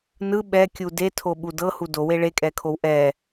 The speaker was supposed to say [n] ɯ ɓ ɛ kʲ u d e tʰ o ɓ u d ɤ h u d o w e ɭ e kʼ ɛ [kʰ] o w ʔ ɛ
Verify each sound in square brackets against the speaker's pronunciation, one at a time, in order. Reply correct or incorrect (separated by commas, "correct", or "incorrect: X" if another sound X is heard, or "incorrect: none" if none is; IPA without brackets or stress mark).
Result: correct, correct